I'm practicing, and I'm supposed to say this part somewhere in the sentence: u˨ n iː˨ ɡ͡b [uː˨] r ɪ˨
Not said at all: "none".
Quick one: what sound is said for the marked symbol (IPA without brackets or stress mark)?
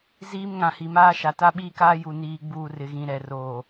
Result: uː˨